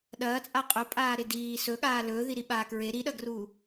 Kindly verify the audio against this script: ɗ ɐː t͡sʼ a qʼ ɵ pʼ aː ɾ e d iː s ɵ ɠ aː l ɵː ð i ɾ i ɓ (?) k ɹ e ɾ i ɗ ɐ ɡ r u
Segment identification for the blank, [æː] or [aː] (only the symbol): aː